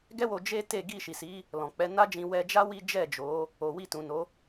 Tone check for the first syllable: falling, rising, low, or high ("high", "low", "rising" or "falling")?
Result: high